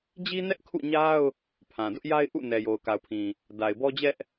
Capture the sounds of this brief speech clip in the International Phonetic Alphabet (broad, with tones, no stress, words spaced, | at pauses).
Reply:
d͡ʑi˦nɛ˦ʔkʰṵ˦˨ɲa˦ʊ̯ | pʰã˨dʊ˦ʔ ja˦ɪ̯ʔṵ˦˨ nɛ˨jo˨ʊ̯ka˨ʊ̯pʰĩ˨ | da˨ɪ̯bɔ˦d͡ʑɛ˦ʔ